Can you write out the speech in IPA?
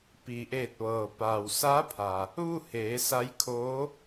p iː˩ ʔ eː˧˩ t̚ ʋ ɤː˩ p a˩ w s a˧˥ pʰ a˩ | ʋ u˥˨ h eː˩˧ s a˧˥ j kʰ oː˧˥

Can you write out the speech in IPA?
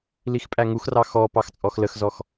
l i x pʼ æ ŋ u x r ɑ x ɔ p ɑ x t͡sʼ ɔ x l ə x z ɔ x

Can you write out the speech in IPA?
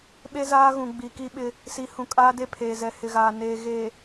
ɓ e˦ z aː˦ ɣ ũ˨ ɡ͡b i˨ k i˦ ɓ ɪ˦ | s i˨ h ũ˨ kʼ aː˦ d e˦ pʰ eː˨ z ɛ˨ h ɪ˨ ɣ aː˨ n eː˨ ɣ e˨

